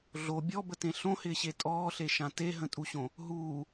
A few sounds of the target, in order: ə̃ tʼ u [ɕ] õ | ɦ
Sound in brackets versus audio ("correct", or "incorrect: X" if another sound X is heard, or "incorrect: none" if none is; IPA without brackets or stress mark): correct